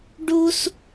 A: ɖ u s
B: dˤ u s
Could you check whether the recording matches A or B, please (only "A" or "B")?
A